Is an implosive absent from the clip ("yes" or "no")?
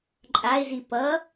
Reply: yes